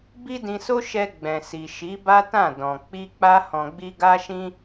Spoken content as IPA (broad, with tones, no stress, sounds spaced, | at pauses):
b i˦ d ĩ˧ s o˦ ʃ ɛ˧ ɡ͡b ɛ̃˨ s i˨ ʃ i˨˦ b a˦ t ã˦˨ d ɔ̃˨ k͡p i˧ k͡p a˧ h ɔ̃˨ ɡ͡b i˧ ɡ a˦ ʃ ĩ˦